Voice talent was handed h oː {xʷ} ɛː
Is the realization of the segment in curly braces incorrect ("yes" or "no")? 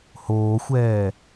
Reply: no